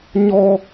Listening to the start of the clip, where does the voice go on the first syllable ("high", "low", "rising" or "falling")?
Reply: high